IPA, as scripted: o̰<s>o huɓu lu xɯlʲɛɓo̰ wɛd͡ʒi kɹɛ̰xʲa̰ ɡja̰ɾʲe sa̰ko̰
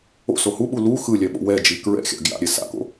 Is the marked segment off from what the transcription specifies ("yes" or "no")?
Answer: no